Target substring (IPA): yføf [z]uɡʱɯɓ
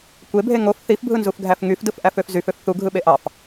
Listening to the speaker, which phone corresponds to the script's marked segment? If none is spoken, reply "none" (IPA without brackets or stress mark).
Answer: θ